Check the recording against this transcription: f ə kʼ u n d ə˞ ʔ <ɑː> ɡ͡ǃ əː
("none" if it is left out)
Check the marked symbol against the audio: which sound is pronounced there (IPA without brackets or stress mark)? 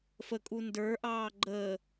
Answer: ɑː